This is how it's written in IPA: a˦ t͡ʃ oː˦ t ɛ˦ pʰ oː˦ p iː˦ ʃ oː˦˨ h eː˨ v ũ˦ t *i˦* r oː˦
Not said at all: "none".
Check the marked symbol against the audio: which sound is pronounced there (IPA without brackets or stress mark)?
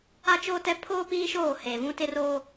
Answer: ɪ˦